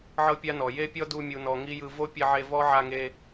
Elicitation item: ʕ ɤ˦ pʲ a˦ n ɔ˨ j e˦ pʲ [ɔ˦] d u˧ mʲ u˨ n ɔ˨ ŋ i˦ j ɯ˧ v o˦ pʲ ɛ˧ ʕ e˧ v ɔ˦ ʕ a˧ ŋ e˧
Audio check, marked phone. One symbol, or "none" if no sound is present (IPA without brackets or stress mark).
ɔ˦